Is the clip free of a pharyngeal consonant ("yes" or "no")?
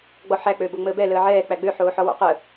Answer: no